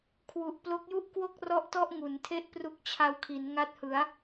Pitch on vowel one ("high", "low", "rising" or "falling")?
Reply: low